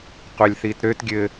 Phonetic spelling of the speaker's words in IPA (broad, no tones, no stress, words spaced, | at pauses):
qʷɛlʲθitɾøt ɡʲɘ